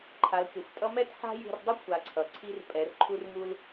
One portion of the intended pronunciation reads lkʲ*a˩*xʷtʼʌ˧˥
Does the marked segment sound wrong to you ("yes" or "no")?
yes